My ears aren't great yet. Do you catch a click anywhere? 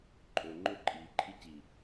yes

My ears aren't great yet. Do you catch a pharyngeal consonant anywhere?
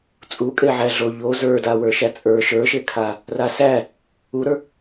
yes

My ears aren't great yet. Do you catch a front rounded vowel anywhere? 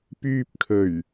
yes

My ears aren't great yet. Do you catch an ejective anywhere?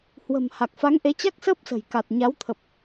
no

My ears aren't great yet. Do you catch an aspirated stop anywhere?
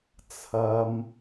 yes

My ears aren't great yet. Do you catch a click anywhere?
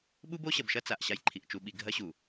yes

